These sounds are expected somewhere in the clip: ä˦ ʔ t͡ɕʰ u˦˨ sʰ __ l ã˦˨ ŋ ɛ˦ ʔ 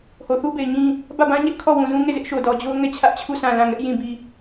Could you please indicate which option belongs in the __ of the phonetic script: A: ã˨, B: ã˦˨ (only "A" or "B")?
B